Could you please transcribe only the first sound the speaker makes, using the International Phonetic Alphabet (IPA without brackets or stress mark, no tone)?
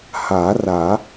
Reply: h